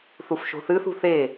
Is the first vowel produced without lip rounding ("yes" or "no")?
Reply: no